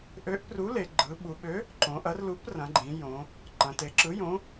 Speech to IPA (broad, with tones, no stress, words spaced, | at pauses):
ʔø˨˥ʔpru˨˥ le˩˧ ɡ͡ǃɯ˩˧ɓu˩˧ɓø˨˥ | ǃõ˩˧ʔɐ˨˥r lu˨˥prɐ̃˩˧ɡ͡ǃĩ˩˧ jõ˩˧ | ǃɐ̃˩˧te˩˧ǁɯ˨˥jõ˨˥